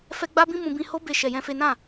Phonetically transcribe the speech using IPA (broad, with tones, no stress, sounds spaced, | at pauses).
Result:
f ɛ˦ ɡ͡b a˦ b ĩ˦ m ũ˧ b ĩ˧ h o˦ b e˦˨ ʃ ɛ˧ j ɛ̃˦ f e˦ n ã˦˨